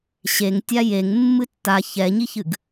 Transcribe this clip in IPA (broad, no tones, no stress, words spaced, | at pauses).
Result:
ɕeŋtʲa jeŋ mːɨtːa çɛɲiçɨɡ